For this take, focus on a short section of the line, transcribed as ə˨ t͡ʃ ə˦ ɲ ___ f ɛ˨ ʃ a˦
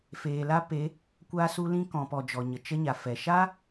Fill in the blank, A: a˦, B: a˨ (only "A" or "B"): B